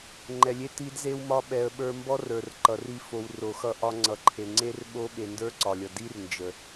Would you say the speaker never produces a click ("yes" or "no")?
no